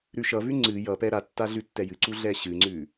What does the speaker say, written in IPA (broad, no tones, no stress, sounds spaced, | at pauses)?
ɾ ʉ ʃ ʌ v ʉ ŋ͡ǀ ɨ j ʌ p ɛ ɾ a tː a ɮ ʉ tː ɛ j ɨ ǀ u ɮ ɛ ɕ ɨ ŋ͡ǀ ʉ